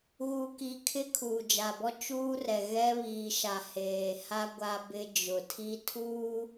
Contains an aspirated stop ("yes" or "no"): yes